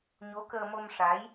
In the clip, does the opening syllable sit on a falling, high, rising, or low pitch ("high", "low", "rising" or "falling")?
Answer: rising